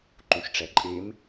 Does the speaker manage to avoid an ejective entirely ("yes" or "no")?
no